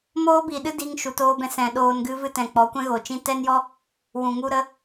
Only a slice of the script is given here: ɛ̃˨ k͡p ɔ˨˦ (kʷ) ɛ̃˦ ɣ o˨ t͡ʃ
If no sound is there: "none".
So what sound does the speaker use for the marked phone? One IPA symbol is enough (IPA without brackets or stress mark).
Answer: kʷ